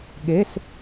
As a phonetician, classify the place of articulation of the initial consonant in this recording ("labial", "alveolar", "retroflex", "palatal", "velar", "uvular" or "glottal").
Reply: velar